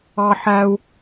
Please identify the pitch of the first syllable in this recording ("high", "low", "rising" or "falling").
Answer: high